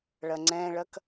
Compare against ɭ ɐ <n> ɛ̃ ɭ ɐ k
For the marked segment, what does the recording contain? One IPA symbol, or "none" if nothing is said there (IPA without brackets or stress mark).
ŋ͡ǀ